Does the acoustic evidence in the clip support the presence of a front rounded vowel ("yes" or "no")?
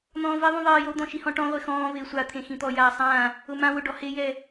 no